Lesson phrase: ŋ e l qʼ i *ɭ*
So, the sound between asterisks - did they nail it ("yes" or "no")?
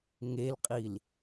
no